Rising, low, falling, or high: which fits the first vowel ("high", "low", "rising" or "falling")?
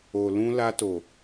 low